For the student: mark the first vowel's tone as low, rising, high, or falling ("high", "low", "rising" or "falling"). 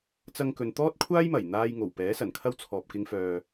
high